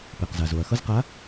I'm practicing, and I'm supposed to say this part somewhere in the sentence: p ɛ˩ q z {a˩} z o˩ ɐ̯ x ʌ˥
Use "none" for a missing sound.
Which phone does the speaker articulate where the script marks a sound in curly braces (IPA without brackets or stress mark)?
a˩